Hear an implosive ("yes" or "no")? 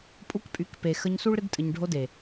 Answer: no